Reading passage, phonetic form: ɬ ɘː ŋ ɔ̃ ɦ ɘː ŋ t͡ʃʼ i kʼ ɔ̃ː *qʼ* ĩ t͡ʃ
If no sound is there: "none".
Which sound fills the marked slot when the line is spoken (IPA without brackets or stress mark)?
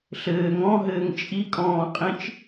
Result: qʼ